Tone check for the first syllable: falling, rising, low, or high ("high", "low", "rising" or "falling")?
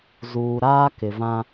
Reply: low